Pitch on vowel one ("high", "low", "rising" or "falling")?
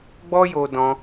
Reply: high